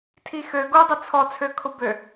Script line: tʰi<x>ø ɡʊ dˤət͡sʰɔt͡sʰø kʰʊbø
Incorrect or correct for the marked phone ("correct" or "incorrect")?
correct